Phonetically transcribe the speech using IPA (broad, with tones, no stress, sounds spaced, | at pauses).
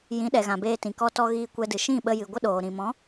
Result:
j ĩ˨˦ ɗ ɛ˨ ɣ ã˨ b eː˧ t ĩ˨ k ɔ˧ t ɔ˧ ɣ iː˧ kʷ ɛ˧ d ɨ˨ ʃ ĩ˦˨ ɓ ə˧ j ɨ˨ ɡʷ ə˦ ɗ oː˨ ɾ ĩ˨ m ɔ̃˨˦